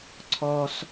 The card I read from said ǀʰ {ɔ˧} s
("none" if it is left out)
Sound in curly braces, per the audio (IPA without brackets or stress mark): ɔ˧